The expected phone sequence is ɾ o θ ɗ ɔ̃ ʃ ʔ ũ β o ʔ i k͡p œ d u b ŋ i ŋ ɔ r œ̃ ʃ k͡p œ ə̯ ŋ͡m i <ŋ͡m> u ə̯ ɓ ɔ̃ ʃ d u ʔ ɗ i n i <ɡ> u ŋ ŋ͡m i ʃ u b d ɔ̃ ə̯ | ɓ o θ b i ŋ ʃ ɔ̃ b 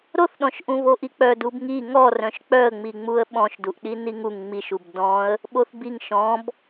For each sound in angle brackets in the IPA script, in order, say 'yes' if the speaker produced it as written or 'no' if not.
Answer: yes, no

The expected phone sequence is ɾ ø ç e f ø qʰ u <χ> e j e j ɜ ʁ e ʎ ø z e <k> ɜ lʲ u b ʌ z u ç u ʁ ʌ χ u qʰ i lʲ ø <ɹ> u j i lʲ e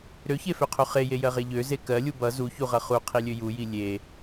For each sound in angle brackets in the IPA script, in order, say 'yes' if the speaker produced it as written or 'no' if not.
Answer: yes, yes, no

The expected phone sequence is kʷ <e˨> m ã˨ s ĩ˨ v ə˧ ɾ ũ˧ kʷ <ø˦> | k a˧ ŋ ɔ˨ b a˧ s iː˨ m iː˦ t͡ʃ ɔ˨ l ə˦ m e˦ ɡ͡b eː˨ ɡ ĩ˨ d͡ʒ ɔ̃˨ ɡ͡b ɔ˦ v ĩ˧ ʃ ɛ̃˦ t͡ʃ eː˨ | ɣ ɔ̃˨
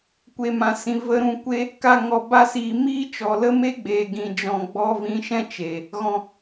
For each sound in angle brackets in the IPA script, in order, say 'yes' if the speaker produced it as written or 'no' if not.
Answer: yes, no

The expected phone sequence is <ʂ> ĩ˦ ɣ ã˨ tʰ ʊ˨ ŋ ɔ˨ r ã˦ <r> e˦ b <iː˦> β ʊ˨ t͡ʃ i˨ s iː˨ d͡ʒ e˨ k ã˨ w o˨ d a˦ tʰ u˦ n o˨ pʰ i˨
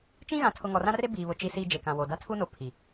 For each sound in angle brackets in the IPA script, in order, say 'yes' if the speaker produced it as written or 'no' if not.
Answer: no, yes, no

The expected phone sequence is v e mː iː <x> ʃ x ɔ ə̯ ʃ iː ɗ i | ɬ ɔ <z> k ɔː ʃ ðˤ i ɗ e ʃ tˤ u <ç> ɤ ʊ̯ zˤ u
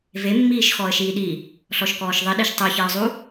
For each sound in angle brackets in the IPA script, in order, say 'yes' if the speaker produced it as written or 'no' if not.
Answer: no, no, yes

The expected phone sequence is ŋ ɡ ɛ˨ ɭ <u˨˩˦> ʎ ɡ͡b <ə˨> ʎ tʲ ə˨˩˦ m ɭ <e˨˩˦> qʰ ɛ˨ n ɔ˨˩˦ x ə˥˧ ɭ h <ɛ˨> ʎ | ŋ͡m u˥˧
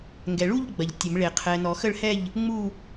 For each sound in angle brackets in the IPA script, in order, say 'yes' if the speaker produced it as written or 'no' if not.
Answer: no, no, yes, no

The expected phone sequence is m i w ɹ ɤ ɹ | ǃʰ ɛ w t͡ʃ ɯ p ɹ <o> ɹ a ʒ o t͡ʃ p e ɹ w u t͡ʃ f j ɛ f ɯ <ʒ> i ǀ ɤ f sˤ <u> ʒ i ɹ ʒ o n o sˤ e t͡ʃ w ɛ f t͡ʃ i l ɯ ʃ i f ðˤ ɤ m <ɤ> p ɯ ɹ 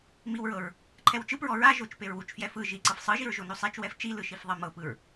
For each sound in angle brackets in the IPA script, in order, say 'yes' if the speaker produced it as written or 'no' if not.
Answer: no, yes, no, yes

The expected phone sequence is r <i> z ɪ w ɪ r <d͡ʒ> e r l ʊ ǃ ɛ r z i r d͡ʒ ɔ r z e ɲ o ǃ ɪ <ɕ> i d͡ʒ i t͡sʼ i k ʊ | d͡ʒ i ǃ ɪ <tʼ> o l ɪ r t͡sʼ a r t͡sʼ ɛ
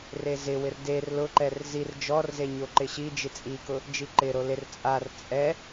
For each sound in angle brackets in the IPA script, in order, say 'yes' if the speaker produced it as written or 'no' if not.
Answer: no, no, yes, no

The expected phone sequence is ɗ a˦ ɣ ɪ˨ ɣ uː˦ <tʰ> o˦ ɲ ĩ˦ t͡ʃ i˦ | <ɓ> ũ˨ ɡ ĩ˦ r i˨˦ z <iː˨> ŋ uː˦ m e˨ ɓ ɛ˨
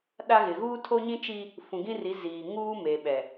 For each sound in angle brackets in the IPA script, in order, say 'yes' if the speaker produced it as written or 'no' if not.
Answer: yes, no, yes

